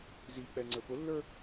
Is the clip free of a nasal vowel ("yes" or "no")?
yes